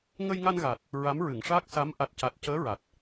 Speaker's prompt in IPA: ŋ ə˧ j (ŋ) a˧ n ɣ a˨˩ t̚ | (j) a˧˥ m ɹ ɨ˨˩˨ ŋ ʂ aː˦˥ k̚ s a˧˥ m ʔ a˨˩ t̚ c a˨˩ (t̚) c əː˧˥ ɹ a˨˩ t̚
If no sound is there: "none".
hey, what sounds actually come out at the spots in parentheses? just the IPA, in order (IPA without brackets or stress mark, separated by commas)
ŋ, ɹ, t̚